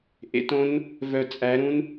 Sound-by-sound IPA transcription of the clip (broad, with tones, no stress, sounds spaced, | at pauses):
ʔ ḛ˨˦ t õ˦˥ n | v œ˧˩ t͡sʼ æ˨˦ ɾ ũ˦˥ n